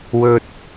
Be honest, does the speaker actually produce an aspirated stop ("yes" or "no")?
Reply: no